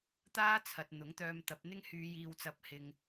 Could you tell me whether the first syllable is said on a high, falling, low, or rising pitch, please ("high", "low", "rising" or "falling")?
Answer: high